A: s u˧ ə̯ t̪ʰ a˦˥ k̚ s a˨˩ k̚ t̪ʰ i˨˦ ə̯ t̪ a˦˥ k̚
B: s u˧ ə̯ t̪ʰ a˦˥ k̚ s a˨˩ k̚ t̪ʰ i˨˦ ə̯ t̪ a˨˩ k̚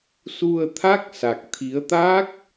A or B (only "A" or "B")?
A